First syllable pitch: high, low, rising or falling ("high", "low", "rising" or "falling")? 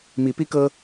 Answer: rising